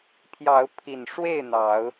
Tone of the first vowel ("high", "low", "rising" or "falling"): rising